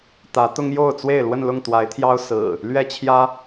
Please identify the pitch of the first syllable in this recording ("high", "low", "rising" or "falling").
rising